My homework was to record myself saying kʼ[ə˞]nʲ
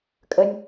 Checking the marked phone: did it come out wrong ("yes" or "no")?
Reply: yes